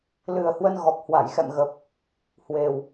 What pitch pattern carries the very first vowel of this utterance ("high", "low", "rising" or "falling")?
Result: low